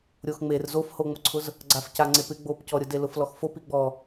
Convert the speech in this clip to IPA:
ɾʲ o x ŋ͡m e r z o f h o ŋ͡m ʊ ǀʰ ʊ z | ɡ͡ǀ a f c a ŋ͡ǀ e p ɪ ɡ͡b o p c ɔ ɾʲ ʊ d e l ʊ f l ɔ x f o p i ɡ͡b ɔ

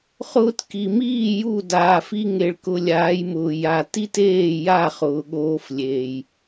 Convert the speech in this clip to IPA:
χ ʊː˧ t k i˨ m iː˦˨ j u˦˨ d aː˨ f i˧ ŋ e˨ ɭ k ʊ˧ lʲ aː˨˦ j m ʊː˨ j a˨ t i˦ t eː˦˨ j a˦˨ χ ʊː˨ ɠ oː˧ f lʲ eː˨ j

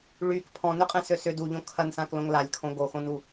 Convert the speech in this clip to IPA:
ɭ y k pʰ ɔ̃ n ø qʼ ɛ̃ s ø s ʏ d u ʎ õ kʰ ɐ n s ã k l õ ŋ l a lʲ kʰ õ ɡ o x õ n u

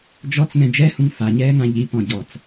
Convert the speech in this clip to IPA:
d͡ʒ ɔ t͡s ŋ ɛ̃ d͡ʒ ɛ h ũ ŋ f a ɲ ɛː ŋ ã ʎ i p ɔ̃ ɟ ɔ t͡s

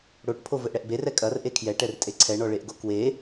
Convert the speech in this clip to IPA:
ɽ o ʈ pʰ o v ɘ ʔ ɽ ɛ ʔ b e r ɛ kʼ ɐ r ʔ e kʰ j ɛ ʈ ɛ r tʼ e ǀʰ ɛ ɳ ɔ ɭ e ʔ ɡ o k w e

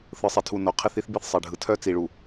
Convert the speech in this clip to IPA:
θ ɯ˨ sˤ i˨ tʰ u˨ n o˨ qʰ ɪ˦ θ i˦ θ b i˦ θ sˤ e˨ ɖʱ ɯ˨ tʰ œ˦ t͡s i˨ ɭ u˨

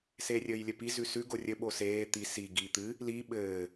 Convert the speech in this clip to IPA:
s eː rʲ ɘː j lʲ ɘ p i z ʉ s ʉ ɡ o rʲ ɘ ɓ o s eː t̪ i s i ɡ iː t̪ ɨ | l i ɓ ɘː

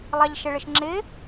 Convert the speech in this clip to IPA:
lˠ ɑ ʎ ʃ ɪ ɭ ɪ ʃ ŋ͡ǁ ɪ

